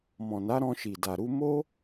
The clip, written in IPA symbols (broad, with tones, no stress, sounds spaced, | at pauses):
m ɔ̃˨ n a˨˦ ɾ ɔ̃˧ ʃ i˨ d a˨ ɾ u˧ m o˦